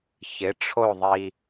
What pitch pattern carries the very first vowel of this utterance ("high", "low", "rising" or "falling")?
rising